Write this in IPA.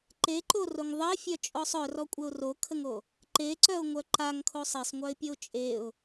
ǃeǃoroŋ ðˤəɪ̯fʲœt͡ʃʼɔsˤ œrɔkʷʼəʊ̯ rokʰəŋo | ǃeǀœʊ̯ŋʷœ ǃaŋkʰo sˤesˤŋʷœɪ̯pʲəʊ̯ t͡ʃʼeʊ̯

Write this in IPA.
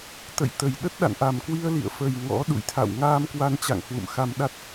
t̪ə̰˧˨j t̪ə˨˩jɗə˦˥t̚ ɗa̰˧˨nʔa˨˩mkwi˧ə̯lḭ˧˨ə̯ fə˨˩j ŋɔ̰˧˥ ɗṵ˧˨jt̪ʰa̰˧˨w ŋaː˧m kwa˧nt͡ɕa̰˧˨ŋ hwṵ˧˨mxa˧m ɗa˦˥t̚

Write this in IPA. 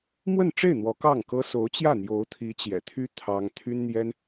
mwə˥˧nʈ͡ʂe˥˩ɪ̯ n̪wɔ˧˥kɑ˥˩ŋkɤ˥ so˧˥ʊ̯t͡ɕjä˥˩ n̪jo˧˥ʊ̯t̪ʰi˧˥t͡ɕjɛ̰˨˩t̪ʰy˥ t̪ʰɑ˥ŋ t̪ʰy˥nn̪jɛ˥n

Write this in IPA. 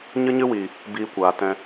ɲɨ˦ɲɨ˦wiː˨ | biː˧kʷaː˨ tɛ̃˧

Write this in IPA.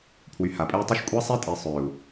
pʰwy˨ha˨pʼe˦y̯tˤi˦ʃ kʷʼa˦sˤe˦tʼe˨ sˤø˨u̯

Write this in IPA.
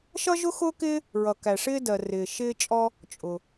ʃʌ˥ʒʊ˥xʊː˥kɪː˥ | ɹʌ˩kæ˩ʂɪː˥dɜ˩ rɪː˩ʃ ɪː˥t͡ʃʼɔ˥ | t͡ʃʼʊ˩

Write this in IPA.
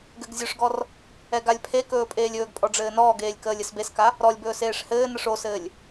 ɡɘɡzʲɵʂɡɔr | ɛɡalʲpʰekɵː pʼeːlʲɵːɡpʼɔ ɖ͡ʐɘːnɔːɡeːlʲ kəːlʲɘsbeska | ɾɔlʲbɵːs eːʂhɘːnəʂ osɘːlʲ

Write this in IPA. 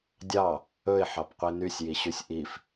dʲɑ | ɵɪ̯ħɑpqʷi nysʲjiɕysʲ ʔif

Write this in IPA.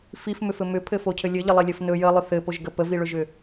fifmʏfɘ mʏpʰɘfocʰɘ lʲɘʎəlˠilʲɘf nɵ jəlˠʏ θɘpoʒɡə pəviɭɵʒʏ

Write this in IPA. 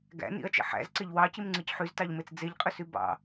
ɡæ̰ nḭɐ̯t͡ʃḛ ħæ̰zǀeʎ wɑcimŋ͡ǀɯc ħyztɑʎmet͡s d͡zeʎqʼøsy bɑ̰

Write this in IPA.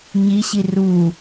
ɲiɕi ru

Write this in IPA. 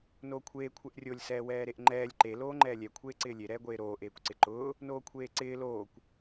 noːkʷʰeː kʷʰɛʔrʲolʲ sɛːwɛːɾeʔŋ͡ǃɛːlʲ ǃe loːŋ͡ǃɛːlʲɛ kʷʰeːǀɪːlʲe ɾɛːɡʷeːɾoː ʔeːkʷǀɪǃʊː | noːkʷʰeːǀɪː loːkʷ

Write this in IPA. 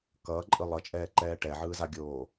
kʌːǃʼɯ lˠʌt͡ʃʼɛːǃɛː ʈɛʕɯːzaɡʲoː

